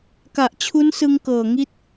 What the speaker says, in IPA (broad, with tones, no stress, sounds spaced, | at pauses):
k a˨˩ ʔ t͡ɕʰ u˦˥ n s ɯ˧ ŋ k ɤː˨˩ ŋ i˦˥ t̚